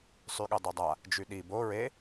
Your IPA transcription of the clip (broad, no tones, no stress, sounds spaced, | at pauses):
sˤ y ɠ ɘ dˤ i dˤ a | d͡ʒ y ɗ i b o ɹ e